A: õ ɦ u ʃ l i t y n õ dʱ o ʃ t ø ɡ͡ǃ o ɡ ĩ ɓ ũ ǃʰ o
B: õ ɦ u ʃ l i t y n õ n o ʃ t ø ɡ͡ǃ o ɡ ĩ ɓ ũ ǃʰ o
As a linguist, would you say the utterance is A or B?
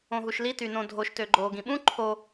A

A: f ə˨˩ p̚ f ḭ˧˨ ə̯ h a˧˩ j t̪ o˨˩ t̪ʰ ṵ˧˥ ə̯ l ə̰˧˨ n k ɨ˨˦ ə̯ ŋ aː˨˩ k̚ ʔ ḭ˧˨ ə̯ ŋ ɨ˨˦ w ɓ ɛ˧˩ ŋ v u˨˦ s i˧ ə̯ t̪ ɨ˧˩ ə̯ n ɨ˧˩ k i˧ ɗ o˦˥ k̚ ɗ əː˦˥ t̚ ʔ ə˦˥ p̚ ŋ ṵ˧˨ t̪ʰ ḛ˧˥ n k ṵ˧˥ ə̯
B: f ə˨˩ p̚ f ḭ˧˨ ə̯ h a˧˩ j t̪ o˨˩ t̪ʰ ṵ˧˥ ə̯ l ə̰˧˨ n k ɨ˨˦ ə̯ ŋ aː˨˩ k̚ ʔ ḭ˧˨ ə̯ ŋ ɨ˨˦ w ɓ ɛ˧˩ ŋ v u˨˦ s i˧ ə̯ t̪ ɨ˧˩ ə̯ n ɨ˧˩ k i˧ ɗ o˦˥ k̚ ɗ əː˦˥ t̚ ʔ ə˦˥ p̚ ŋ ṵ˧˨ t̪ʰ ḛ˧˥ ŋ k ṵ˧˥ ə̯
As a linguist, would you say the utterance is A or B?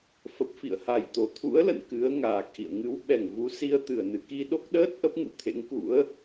B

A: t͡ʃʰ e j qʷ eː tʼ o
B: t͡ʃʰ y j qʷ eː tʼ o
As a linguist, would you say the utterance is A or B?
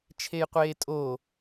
A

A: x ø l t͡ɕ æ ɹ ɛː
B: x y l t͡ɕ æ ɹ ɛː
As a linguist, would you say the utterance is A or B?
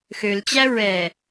A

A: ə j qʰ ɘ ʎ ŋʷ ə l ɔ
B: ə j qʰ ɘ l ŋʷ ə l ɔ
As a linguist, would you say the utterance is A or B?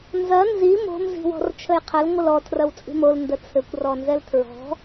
B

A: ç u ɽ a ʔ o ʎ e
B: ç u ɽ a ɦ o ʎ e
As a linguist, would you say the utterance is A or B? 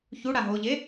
B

